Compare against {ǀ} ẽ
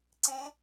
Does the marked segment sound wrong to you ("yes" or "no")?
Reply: no